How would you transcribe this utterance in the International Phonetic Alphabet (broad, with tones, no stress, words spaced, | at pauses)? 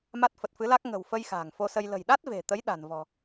ma˦˥t̚fə˨˩t̚fɨ˨˦la˦˥k̚ ŋə̤˨˩wfə˧j xa̤ː˨˩ŋfo˧sə˧j lə̤˨˩jɗa˦˥t̚ve̤˨˩t̪ə˨˦j ɗa̤˨˩nvɔ̤˨˩